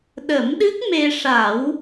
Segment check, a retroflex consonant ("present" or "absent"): present